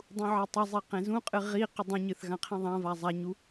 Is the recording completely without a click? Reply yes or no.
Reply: yes